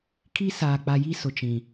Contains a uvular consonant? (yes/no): no